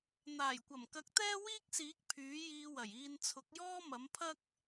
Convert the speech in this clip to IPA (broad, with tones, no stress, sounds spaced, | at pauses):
n̪ aː˨˩ j kʷ ɐ˨˩ m k ɐ˨˥ k̚ t̪ ɛː˥ w iː˥ k̚ s iː˨˥ k̚ pʰ yː˨˥ j iː˧ w ɐ˨˩ j iː˧ n t͡sʰ ʊ˨˥ k̚ j ɔː˥ m ɐ˨˥ m pʰ ɐ˥ k̚